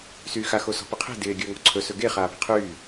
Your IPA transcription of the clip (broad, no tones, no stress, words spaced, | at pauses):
syːxa xosɔ̤pɪqʰe̤ dɪː ɡʲəːŋɔ̤ǀʰɵ sɵɡe χaːpe̤qʰyː